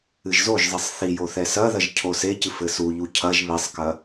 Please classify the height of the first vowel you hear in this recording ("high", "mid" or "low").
high